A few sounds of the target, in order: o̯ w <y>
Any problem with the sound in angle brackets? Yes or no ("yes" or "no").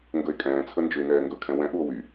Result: no